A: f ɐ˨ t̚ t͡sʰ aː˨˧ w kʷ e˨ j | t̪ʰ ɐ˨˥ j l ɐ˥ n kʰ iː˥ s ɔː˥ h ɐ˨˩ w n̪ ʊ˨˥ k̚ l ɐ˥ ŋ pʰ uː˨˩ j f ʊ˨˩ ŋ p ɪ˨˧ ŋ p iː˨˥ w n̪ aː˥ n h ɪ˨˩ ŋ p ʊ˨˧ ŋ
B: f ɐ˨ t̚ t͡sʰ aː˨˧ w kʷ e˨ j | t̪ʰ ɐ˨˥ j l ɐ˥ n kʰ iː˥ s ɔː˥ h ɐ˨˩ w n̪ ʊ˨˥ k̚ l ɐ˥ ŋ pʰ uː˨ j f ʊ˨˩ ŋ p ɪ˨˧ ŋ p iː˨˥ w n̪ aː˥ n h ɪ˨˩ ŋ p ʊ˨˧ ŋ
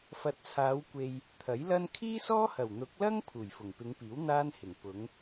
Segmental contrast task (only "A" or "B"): A